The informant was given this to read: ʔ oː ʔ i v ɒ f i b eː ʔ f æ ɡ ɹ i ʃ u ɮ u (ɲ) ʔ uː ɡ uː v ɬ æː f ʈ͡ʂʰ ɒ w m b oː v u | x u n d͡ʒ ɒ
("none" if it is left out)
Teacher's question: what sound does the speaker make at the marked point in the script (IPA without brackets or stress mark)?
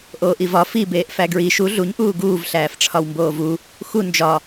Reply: ɲ